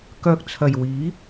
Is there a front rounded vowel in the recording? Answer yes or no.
yes